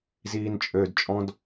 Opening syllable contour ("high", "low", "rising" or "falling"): low